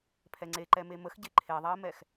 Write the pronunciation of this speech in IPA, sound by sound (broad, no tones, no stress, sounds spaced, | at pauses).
pʰ ɛ ŋ͡ǀ e ǃ ɛ m e m ə x ɟ e ǃʰ e ðˤ ɛ ə̯ m ɛ x